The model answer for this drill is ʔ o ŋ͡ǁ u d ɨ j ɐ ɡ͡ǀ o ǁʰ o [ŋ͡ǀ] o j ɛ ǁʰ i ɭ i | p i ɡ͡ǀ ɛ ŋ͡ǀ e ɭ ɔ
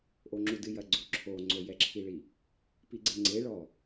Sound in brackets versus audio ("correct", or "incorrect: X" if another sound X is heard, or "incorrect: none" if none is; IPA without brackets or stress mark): correct